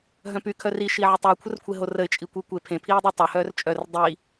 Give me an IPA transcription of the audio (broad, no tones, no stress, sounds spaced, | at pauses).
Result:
ɦ œ̃ p y kʰ œ r i ʃ i ʕ ə tˤ y ʊ̯ kʷʰ ə r kʷʰ e ɦ o r ə ɪ̯ t͡ʃʼ i kʷ i kʷ e pʰ ẽ pʰ iː dˤ ɛ tˤ œ h œː r t͡ʃʼ œ r dˤ iː